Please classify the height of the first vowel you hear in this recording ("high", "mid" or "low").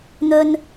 mid